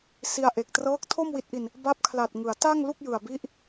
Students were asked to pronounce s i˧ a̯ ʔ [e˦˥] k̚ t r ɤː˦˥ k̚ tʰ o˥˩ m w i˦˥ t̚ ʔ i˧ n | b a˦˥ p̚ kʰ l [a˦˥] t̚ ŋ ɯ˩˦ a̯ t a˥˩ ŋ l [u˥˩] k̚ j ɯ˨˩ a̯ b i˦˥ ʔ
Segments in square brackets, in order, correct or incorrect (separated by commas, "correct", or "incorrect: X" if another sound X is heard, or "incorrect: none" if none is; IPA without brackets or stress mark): incorrect: e˨˩, incorrect: a˨˩, correct